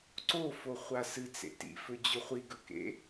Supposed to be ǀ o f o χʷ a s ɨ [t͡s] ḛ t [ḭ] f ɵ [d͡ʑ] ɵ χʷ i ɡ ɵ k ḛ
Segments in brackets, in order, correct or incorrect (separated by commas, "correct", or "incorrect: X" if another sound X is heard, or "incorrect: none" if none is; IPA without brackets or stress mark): correct, correct, correct